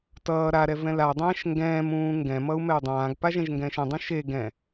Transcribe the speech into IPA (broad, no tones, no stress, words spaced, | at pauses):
tʌː ɾaɾɛ vɛ̃ladˤɛ̃ːʃ ŋɡɛ̃ːm ũːŋɡɛ̃mʌu̯ mɛu̯dˤãːɡpa ʒɛ̃ʒŋɡɛ̃ːʃɛ̃dˤũ ʃe ɡɛ̃